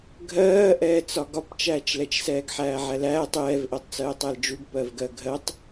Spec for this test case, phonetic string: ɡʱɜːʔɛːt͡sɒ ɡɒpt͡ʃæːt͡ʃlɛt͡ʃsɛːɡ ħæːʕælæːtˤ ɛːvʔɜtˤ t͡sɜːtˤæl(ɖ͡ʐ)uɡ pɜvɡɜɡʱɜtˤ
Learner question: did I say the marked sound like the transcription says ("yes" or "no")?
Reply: no